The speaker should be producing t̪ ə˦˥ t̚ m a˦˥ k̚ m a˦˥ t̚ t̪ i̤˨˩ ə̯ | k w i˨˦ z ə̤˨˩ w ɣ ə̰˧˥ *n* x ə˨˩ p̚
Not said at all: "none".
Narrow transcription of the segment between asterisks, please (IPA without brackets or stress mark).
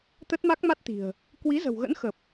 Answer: n